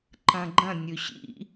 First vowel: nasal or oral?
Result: nasal